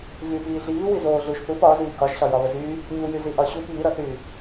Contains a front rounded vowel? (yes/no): yes